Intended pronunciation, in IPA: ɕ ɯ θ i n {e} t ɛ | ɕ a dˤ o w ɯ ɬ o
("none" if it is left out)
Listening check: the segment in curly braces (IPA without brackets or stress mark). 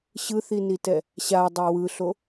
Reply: i